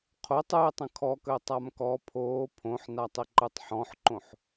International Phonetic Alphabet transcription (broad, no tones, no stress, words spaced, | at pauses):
qʰotˤ ɯɪ̯tˤə̃ kʰɔkəʊ̯ tˤamkɔ pʰoː pʰõħnatˤɪ ǃɯtˤħɔ̃ħǃõħ